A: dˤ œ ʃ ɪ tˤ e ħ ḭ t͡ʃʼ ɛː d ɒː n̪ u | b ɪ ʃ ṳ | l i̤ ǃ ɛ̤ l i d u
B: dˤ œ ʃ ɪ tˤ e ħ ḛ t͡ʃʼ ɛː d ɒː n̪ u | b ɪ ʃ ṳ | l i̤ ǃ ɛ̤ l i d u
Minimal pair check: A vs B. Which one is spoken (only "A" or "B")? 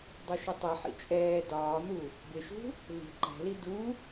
A